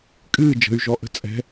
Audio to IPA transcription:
kʼɨː d͡ʒə̤y̯ʒɔʔə̤ t͡sʼɛ̤

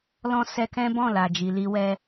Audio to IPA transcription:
lɔ̃˦ sɛ˧kɛ̃˦bɔ̃˦˨ la˨d͡ʒi˨ li˧wɛ˧

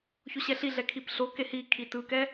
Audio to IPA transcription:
çoɕɛɬi ɮɛkʰipɬo kehi kʰitɯkɛ

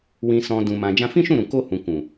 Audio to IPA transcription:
wĩ˨sɔ̃˨ dũ˨mã˨ d͡ʒã˧fĩ˦ʃũ˦˨ɾũ˨ ko˧hũ˨ kũ˨

